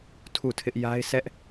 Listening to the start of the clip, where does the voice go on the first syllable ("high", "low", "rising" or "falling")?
falling